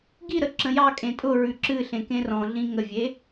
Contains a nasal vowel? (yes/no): yes